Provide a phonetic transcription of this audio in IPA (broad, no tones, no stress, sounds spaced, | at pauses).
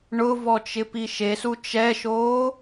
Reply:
ɳ ʊ v ɔ t͡ʃ ɪ p i ʃ e s u t͡ʃ ɛ ʃ oː